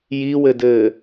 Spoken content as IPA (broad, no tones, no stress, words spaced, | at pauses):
jiwɘdɘː